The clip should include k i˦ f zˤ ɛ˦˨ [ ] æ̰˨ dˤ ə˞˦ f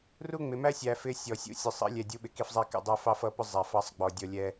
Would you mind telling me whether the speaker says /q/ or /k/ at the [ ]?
k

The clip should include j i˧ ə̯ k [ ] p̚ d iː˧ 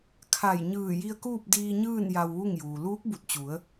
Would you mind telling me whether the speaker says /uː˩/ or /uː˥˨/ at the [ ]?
uː˥˨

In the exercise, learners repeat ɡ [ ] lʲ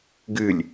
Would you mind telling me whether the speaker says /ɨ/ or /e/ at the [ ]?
ɨ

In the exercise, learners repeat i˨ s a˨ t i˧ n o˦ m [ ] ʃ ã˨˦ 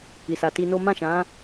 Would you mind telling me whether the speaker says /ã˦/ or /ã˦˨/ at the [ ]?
ã˦˨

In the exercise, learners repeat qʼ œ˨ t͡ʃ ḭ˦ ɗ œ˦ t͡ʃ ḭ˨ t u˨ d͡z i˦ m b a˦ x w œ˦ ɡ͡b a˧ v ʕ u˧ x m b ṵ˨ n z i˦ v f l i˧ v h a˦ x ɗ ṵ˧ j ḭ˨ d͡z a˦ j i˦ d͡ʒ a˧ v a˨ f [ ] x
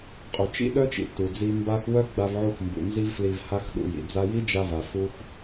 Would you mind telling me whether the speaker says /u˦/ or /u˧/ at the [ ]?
u˦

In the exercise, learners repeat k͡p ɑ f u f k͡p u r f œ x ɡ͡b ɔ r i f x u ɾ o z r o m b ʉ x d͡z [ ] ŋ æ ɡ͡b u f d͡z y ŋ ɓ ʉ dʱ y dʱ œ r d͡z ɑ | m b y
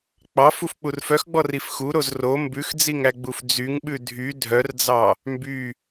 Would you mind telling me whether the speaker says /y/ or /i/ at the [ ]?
i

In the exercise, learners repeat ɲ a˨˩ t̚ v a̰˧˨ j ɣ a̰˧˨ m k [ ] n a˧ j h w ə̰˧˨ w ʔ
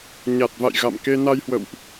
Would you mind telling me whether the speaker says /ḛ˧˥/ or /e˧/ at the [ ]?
e˧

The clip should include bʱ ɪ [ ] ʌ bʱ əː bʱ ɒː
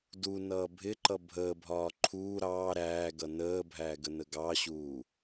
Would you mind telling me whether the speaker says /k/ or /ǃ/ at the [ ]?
ǃ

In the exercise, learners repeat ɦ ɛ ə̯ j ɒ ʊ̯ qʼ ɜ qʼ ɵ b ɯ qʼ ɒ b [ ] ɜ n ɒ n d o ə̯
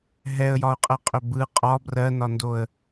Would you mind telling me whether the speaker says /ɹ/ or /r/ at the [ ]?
r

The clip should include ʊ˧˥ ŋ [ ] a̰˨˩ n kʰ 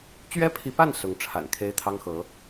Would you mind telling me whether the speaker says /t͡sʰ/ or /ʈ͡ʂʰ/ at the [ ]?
ʈ͡ʂʰ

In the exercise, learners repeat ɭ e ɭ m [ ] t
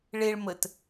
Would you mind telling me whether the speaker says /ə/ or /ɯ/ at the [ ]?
ə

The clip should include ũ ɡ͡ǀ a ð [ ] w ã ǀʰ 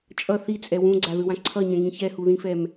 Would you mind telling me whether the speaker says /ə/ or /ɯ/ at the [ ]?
ɯ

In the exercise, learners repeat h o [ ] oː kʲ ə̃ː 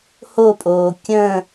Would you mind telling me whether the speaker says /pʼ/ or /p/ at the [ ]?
pʼ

